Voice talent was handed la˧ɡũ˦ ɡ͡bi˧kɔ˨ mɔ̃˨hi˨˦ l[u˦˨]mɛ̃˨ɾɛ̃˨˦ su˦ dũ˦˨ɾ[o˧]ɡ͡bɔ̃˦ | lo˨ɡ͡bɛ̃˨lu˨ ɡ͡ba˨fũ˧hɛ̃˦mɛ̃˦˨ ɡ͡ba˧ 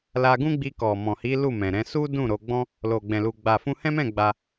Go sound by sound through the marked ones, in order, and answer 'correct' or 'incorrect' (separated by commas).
correct, correct